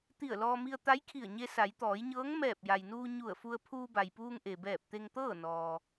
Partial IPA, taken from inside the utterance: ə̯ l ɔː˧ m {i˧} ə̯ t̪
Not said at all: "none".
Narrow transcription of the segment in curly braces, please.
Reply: i˧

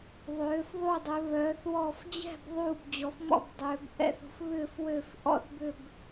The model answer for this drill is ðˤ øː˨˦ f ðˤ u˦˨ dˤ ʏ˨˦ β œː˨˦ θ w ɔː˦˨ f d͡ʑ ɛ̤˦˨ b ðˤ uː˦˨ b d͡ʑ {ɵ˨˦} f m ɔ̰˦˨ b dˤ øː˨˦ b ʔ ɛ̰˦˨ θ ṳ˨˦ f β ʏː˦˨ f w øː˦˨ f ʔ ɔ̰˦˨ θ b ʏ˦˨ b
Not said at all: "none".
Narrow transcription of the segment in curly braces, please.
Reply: ɔ˨˦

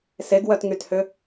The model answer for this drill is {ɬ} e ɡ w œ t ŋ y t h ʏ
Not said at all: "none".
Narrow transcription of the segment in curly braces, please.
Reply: s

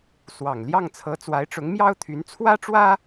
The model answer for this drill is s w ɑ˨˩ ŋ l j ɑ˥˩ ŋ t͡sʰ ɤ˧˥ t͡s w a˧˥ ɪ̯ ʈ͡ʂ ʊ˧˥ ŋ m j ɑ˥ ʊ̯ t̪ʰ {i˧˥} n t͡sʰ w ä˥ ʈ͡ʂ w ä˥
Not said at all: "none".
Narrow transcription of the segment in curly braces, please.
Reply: y˧˥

